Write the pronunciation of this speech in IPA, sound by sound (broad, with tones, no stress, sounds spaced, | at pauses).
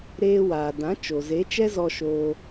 ɾ eː˧ w aː˨ d ã˨˦ t͡ʃ o˨ z e˨˦ t͡ʃ ɛ˦ z ɔ˧ ʃ oː˧